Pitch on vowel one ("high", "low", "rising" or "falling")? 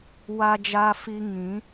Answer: low